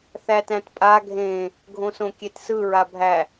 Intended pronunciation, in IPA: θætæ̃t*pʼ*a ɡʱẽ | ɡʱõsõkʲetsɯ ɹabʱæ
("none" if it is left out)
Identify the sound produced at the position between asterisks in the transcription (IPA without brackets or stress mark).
pʼ